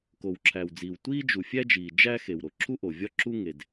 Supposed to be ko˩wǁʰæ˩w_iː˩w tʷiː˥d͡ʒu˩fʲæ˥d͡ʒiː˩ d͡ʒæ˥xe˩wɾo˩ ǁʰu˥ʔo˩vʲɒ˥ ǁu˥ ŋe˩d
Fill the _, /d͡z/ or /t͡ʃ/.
d͡z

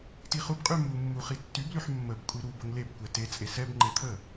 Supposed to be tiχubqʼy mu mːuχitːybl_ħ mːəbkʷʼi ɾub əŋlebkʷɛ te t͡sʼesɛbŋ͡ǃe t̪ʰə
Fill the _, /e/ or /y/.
y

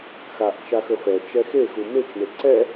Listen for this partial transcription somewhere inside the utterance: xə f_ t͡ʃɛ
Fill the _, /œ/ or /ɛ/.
ɛ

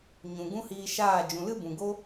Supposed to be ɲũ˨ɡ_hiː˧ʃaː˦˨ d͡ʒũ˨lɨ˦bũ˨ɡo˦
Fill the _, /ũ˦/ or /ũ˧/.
ũ˦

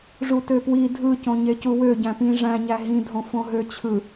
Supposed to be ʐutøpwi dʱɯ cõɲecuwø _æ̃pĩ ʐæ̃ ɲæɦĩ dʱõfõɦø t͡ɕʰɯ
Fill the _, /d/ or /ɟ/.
ɟ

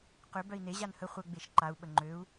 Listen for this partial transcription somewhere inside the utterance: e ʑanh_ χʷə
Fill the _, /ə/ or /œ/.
ə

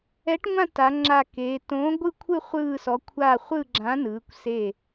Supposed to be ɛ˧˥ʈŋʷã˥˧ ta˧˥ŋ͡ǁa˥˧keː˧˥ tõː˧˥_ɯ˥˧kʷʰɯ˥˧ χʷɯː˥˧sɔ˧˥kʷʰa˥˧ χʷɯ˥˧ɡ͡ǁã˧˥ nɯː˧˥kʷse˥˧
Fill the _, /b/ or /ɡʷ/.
ɡʷ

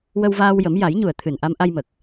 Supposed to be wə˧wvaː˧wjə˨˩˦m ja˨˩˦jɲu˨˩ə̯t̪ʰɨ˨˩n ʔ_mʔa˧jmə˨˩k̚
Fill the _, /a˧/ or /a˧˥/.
a˧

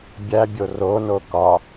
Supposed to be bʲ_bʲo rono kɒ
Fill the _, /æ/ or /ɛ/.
æ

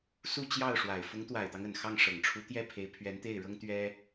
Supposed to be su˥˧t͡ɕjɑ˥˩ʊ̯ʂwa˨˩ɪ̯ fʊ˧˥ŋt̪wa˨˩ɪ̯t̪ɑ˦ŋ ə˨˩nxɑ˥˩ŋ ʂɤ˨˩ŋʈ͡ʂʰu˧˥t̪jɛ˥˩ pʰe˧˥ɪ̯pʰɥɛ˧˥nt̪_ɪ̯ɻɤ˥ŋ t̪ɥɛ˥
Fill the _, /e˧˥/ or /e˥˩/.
e˥˩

